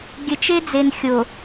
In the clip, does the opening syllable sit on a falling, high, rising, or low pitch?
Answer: low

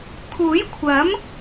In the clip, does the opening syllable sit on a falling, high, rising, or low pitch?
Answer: rising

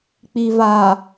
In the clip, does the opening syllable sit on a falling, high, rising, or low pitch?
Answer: low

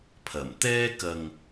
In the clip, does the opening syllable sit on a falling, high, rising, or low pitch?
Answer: low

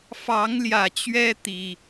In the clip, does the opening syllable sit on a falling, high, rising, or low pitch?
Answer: rising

